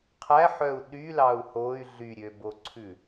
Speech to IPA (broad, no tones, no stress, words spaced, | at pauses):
qʰæħœu̯ ɗylɑu̯ hoy̯ ɮyɾʲøboǀʰʉ